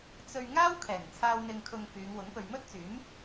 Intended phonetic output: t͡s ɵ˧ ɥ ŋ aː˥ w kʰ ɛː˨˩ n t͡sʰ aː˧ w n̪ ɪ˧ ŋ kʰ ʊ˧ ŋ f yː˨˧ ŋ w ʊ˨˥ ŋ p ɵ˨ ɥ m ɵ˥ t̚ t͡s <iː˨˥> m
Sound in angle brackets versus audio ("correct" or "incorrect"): incorrect